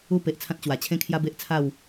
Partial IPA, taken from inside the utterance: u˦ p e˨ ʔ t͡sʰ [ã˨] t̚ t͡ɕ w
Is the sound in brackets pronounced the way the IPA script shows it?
no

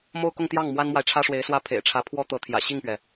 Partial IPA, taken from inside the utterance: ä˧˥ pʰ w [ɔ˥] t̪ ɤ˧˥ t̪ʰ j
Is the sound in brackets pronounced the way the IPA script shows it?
yes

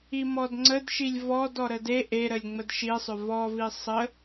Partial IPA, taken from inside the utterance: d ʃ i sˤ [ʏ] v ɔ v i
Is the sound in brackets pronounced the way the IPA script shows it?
yes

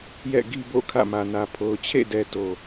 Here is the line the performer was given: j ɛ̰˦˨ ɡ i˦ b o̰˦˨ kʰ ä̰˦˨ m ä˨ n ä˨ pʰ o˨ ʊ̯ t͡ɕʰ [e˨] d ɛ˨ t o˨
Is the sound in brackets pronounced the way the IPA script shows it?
no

